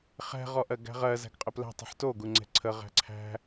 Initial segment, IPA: χ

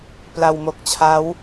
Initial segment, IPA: p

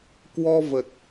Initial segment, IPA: k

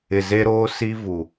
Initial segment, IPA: ɪ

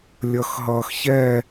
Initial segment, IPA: lʲ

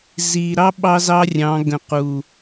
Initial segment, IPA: z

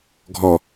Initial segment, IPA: ɡʱ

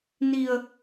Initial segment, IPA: n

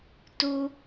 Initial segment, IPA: t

